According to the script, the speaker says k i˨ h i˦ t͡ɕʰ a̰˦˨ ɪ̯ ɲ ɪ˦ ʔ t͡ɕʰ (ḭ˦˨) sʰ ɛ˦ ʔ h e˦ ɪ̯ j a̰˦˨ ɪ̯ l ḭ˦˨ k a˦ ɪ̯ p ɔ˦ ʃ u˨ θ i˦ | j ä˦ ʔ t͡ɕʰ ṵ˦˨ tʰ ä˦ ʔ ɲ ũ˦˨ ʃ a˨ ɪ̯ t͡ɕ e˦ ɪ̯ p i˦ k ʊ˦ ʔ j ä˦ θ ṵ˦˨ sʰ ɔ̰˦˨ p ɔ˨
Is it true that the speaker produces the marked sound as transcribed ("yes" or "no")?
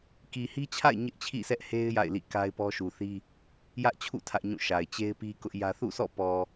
yes